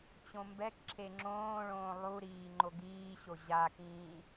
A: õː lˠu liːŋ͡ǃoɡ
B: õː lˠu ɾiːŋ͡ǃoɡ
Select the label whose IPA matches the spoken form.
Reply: B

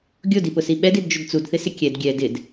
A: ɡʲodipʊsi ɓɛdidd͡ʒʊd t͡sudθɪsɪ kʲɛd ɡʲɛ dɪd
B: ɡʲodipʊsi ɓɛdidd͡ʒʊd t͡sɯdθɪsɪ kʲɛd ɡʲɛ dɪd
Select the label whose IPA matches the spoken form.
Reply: A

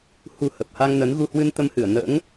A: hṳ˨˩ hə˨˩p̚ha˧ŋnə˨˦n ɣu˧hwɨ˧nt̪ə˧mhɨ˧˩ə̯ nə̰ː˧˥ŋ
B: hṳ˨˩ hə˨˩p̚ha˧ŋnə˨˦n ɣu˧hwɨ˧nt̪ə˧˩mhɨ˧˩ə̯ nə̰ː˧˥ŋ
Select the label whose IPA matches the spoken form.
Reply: A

